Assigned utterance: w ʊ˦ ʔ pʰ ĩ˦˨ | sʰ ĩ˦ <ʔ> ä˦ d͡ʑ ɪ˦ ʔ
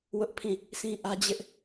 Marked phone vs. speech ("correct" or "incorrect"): correct